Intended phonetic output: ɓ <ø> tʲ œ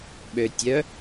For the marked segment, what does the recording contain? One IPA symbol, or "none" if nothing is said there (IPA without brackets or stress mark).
ø